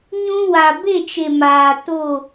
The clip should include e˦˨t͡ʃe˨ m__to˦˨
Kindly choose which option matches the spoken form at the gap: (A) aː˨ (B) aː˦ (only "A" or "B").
A